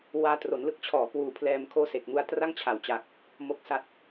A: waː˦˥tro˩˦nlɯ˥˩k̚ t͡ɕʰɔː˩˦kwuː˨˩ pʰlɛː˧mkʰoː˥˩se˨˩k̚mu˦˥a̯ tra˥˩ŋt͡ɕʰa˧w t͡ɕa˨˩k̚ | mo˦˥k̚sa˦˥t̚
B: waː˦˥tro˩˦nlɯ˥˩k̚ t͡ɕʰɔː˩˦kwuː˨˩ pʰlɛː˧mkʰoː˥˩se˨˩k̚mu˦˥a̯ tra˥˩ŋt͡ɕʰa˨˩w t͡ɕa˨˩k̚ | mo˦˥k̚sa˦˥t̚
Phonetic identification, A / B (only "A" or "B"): B